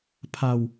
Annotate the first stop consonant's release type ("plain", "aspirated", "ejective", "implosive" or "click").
aspirated